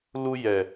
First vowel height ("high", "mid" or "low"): high